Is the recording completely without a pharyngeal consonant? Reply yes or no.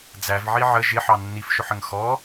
no